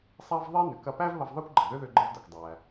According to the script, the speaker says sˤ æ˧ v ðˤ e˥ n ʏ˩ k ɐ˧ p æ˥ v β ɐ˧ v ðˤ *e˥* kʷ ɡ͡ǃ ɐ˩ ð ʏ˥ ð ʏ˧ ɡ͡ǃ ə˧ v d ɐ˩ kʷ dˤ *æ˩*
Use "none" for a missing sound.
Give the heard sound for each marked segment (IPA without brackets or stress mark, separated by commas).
e˥, æ˩